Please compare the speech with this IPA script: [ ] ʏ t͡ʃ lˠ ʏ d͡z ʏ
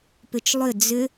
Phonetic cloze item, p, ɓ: p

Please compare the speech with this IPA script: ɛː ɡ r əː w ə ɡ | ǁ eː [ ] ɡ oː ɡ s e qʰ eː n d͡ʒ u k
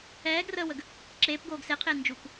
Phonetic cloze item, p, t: p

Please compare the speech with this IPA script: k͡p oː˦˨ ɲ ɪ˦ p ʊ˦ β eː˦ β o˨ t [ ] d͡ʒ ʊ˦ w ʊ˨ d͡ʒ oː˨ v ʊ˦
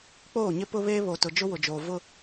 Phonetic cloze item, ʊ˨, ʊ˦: ʊ˨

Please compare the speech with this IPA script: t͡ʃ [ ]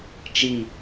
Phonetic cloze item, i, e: i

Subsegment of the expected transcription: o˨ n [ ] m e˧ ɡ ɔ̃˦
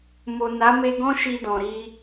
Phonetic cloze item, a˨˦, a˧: a˨˦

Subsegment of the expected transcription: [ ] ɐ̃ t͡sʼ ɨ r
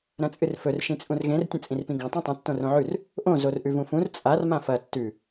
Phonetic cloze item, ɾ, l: ɾ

